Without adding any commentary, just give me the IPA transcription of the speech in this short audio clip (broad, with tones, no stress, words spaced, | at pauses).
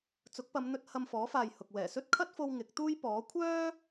t͡sʊ˨˥k̚pɐ˨˧mn̪ɵ˧t̚ hɐ˧mfɔː˨˥faː˨j hʊ˨k̚ wɛː˨˩sɵ˥t̚kʰɐ˥t̚fo˧w ŋɪ˨˥k̚t̪uː˥j pɔː˨˥ kʷʰœː˥